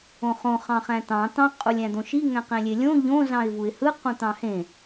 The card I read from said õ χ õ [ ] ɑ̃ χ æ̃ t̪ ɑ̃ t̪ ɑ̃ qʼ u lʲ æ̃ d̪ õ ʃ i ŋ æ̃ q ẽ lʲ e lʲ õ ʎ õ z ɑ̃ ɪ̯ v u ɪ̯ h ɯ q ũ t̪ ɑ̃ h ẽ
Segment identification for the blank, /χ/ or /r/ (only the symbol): χ